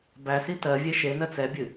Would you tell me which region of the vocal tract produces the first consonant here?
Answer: lips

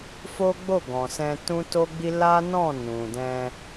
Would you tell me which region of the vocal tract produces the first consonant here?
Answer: lips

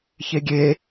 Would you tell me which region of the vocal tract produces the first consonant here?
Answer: palate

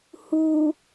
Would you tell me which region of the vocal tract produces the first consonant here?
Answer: throat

